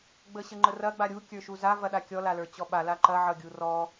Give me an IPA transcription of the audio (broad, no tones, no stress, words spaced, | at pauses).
ɡ͡bəɕəŋ͡ǃərɐ ɡ͡baɾʲu kʲə˞ʃuza vɐɗakʲɔ lalə˞t͡ɕɔɓa laǃɐ ʕʌɡʲurɔ